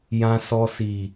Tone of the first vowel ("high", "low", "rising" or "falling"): low